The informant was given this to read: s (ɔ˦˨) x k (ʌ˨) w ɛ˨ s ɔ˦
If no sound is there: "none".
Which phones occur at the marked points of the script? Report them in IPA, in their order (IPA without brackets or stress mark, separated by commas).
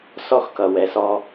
ɔ˦˨, ʌ˨